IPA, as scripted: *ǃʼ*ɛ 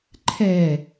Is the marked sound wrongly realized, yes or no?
yes